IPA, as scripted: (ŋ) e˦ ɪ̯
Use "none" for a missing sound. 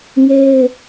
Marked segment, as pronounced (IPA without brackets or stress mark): ŋ